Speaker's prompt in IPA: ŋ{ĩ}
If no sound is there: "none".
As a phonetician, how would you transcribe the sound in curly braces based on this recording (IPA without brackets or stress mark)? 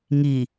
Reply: i